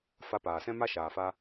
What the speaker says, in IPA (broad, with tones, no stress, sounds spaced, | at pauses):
f a˧ p aː˨ s ɛ̃˦ m a˦ ʃ aː˨ f a˧